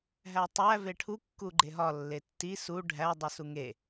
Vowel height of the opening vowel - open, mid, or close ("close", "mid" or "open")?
open